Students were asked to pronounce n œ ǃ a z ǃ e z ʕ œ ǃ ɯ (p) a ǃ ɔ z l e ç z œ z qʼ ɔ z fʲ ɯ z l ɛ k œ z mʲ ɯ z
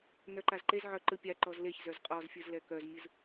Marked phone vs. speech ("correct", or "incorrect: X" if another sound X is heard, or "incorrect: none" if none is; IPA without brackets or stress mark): incorrect: pʲ